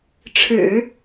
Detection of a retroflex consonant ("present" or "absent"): present